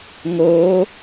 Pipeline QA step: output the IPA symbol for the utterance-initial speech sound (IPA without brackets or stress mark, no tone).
ŋ